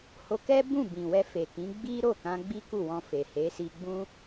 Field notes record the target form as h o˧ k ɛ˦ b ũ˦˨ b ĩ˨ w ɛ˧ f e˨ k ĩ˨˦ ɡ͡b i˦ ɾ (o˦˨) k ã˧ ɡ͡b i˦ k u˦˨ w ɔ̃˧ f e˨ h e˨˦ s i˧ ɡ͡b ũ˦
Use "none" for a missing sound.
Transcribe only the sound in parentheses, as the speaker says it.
o˦˨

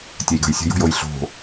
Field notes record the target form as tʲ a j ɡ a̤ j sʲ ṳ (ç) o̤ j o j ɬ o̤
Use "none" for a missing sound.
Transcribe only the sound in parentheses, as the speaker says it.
j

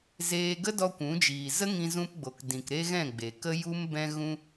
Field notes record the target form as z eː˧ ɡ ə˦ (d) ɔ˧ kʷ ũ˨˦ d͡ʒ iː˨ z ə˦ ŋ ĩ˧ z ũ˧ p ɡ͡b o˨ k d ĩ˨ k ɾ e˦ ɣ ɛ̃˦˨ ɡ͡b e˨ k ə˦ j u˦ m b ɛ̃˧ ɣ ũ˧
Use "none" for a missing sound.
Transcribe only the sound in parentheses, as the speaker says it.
d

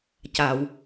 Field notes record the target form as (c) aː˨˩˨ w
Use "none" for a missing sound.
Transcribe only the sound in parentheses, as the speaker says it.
c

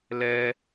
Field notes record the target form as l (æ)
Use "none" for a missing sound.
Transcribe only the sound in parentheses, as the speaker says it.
ɛ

